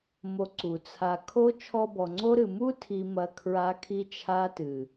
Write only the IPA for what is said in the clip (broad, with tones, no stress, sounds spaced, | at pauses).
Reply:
m o˦ ǀ u˨ t͡sʰ a˧ kʰ o˦ t͡ʃʰ ɔ˧ b ɔ˨ ŋ͡ǀ o˦ ɾ ɨ˨ m u˦ tʰ i˨ m ɐ˨ kʰ ɹ a˦ kʰ i˦ t͡ʃʰ a˦ t ɨ˨